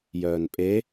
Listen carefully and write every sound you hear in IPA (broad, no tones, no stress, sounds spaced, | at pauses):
j œː n pʼ e